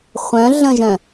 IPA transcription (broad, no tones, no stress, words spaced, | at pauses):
χʷœ̃ɮə̃ʒœ̃